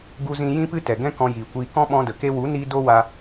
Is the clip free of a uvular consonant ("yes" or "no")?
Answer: yes